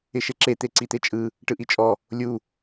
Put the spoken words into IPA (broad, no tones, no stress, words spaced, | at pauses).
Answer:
ɪʃeǁe t̪eǀit̪et͡ʃʼɯ | ʈɯʔit͡ʃʼɔ | lʲu